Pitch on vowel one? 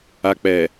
low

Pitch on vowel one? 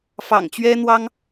low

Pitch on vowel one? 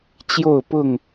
falling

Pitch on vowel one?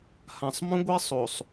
low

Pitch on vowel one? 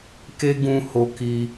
high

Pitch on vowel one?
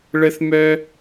high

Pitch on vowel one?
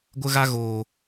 high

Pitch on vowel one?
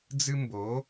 high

